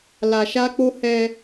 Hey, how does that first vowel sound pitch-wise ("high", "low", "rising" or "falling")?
low